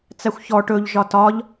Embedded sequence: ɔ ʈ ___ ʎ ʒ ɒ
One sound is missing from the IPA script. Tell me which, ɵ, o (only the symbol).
ɵ